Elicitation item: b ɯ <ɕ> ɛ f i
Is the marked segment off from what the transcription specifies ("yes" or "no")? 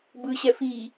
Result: no